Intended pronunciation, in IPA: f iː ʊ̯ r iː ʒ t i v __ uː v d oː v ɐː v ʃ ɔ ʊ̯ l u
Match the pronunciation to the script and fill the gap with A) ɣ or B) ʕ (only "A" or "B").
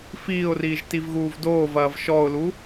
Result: A